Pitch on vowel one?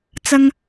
high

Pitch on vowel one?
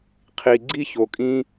low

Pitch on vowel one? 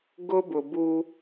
high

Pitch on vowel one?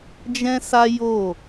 high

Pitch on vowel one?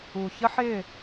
low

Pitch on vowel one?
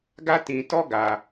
high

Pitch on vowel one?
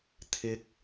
high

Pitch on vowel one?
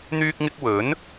high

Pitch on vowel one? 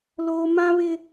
high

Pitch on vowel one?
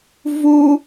high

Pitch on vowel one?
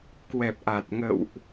low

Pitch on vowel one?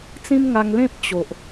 high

